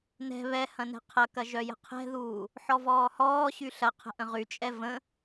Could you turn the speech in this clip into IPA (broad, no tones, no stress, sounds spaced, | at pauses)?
n ɛ̤ β ɛ h ɐ̃ n ɛ̤ qʰ ɐ k ɐ ʒ œ j ə̤ qʰ ɛ̤ ð uː | ħ ɔ v ɔː h ɔː ɕ y ɬ ɐ qʰ ə̤ ʔ ə̃ ʁ y t͡ʃʼ ɛ v ə̃